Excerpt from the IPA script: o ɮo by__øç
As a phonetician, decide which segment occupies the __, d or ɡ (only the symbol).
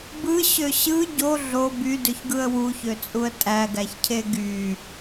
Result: d